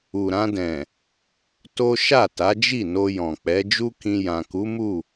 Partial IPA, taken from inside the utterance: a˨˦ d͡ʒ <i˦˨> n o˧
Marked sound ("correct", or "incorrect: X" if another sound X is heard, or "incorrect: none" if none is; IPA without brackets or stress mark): correct